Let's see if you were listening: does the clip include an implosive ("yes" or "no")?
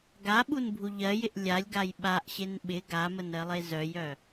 yes